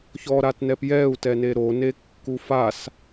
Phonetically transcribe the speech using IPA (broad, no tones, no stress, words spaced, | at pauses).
çɔɾatnɛp jɛu̯ tɛneɾone kːufas